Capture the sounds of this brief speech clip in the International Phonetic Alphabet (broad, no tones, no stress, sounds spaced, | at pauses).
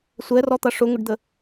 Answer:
sʷ ɛ r ɔ t̪ ʌ ʂ ʊ ŋ ʊ ɖ d̪ ə